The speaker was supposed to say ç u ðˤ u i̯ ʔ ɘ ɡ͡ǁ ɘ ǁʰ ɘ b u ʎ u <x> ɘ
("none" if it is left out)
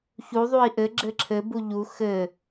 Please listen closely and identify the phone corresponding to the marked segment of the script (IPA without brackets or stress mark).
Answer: x